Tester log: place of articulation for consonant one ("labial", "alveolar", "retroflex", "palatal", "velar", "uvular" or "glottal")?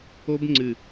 labial